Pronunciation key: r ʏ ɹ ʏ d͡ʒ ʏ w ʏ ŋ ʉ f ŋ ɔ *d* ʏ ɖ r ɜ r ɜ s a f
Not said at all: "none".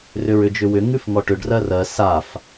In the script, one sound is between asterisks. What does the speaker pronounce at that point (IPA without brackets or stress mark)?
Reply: ʈ